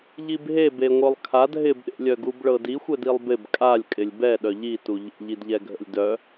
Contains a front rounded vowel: yes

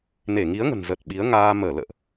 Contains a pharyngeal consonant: no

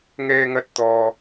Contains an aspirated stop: no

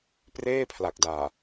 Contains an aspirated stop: yes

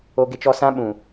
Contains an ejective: no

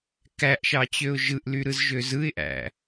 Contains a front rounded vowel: yes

